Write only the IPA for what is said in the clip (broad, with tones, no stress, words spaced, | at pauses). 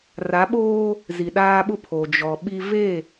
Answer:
ra˨˦ɓoː˦ | zi˨ɗaː˦ɓʊ˦ pʰo˨d͡ʒɔ˨ɓi˦ ve˦˨